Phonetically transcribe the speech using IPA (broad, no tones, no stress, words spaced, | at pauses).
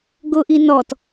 ɡʊ ʔinɔt